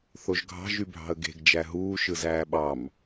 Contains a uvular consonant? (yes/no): no